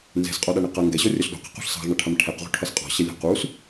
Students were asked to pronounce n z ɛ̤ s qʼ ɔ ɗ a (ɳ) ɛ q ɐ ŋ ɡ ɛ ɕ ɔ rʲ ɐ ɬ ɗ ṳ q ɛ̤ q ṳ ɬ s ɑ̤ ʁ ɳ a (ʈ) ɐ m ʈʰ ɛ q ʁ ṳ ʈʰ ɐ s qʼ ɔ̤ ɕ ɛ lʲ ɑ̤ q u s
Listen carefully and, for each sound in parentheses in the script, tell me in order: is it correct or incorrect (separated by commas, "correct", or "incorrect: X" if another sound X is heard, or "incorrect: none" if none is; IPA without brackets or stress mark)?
correct, incorrect: ʈʰ